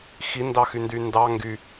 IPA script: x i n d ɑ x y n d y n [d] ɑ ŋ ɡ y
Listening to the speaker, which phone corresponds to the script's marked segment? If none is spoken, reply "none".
d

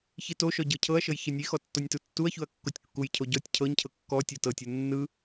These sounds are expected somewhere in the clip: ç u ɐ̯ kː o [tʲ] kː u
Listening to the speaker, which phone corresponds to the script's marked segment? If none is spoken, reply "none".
tʲ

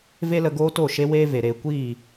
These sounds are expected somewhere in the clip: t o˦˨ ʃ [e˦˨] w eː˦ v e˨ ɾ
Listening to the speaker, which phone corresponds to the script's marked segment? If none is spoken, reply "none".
e˦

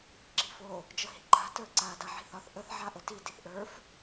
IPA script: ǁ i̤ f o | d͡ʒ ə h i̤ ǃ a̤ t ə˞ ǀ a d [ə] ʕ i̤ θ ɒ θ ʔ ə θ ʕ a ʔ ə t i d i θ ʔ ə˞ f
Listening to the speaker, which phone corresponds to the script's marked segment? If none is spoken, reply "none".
a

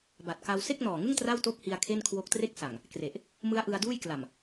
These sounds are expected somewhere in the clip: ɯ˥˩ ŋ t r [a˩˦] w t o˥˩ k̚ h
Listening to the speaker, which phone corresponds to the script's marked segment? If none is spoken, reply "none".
a˥˩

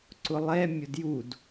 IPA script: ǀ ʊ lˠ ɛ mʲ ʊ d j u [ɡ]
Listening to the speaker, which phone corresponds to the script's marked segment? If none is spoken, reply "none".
d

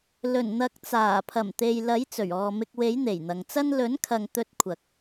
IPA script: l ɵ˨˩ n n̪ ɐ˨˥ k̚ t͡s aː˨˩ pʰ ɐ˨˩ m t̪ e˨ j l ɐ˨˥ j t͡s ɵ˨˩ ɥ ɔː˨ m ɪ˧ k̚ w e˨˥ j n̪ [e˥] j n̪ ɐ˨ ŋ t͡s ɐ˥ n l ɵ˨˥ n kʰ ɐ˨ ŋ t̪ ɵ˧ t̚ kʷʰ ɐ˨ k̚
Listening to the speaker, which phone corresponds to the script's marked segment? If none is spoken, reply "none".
e˨˩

